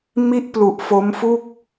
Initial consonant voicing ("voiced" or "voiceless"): voiced